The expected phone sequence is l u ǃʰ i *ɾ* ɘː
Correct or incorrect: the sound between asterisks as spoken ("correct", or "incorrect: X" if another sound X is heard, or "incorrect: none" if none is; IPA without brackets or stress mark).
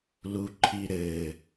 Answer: correct